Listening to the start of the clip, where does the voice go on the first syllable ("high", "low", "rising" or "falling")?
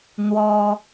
high